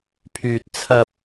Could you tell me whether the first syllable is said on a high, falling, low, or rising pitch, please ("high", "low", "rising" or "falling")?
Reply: low